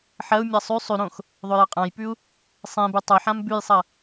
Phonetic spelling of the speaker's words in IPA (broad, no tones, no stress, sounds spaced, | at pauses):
ħ ɐ u̯ mʲ ɐ sˤ ʉ sˤ ʉ ɾ õ x | ðˤ ɵ j ɐ qʼ ã j p ʉ u̯ | sˤ ẽ b ʉ tˤ ɵ ħ ã m b ʉ j sˤ ɐ